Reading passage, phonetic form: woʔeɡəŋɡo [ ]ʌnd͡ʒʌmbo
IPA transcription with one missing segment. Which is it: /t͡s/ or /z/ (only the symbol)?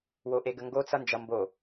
t͡s